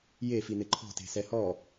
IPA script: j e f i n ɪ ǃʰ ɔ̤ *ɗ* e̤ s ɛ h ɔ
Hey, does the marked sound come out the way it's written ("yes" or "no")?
no